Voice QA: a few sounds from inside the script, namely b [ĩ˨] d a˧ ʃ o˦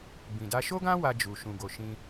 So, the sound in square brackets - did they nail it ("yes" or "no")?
yes